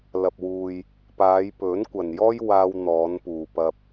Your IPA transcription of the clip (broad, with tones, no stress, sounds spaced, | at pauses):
l ɐ˨ p̚ w uː˨ j | p aː˨˧ j p ɵ˨˥ n kʷ ɐ˨ n j ɔː˥ j w aː˧ w n̪ ɔː˨˧ n p uː˨ p ɐ˧ p̚